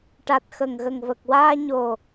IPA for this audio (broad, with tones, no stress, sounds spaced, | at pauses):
ʈ a˨˩ t̚ x ə˨˩ ŋ ɣ ə˨˩ ŋ v ə˨˩ k̚ w aː˧ ɲ o˨˩